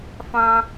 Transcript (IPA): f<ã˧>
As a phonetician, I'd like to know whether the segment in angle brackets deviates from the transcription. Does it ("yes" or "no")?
no